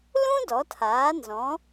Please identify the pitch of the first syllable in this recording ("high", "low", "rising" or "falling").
high